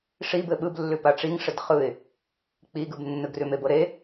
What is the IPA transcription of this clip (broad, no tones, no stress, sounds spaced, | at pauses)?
ʂ i b ɘ ɓ ɯ b lː ʉ p a ʈ͡ʂ i ŋ ʂ ɘ d χ ɯ ɪ̯ | k͡p i ɡ ɯ b nː ɯ ɡ r ʉ m e b ɤ ɾ e